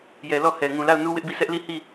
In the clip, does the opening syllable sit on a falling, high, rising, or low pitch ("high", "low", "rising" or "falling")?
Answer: low